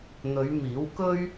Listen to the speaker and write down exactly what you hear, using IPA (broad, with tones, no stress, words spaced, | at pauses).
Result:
n̪ɵ˨˧ɥmiː˨˥wkɵ˥ɥ